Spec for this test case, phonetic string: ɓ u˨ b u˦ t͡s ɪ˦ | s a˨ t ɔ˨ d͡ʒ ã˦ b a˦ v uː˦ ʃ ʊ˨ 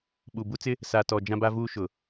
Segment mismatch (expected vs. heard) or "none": none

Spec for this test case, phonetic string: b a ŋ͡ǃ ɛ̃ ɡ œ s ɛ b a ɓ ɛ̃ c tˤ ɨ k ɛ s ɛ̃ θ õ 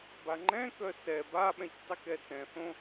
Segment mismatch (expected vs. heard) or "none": ɡ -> k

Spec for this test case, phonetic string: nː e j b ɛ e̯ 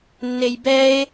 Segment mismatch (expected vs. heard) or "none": none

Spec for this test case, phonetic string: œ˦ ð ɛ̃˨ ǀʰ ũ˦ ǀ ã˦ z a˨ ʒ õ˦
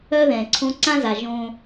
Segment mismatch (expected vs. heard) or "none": ũ˦ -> õ˦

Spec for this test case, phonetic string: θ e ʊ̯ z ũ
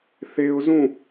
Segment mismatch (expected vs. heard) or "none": none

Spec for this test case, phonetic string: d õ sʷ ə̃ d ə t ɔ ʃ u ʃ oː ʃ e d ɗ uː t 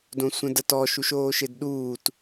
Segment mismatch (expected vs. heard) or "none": none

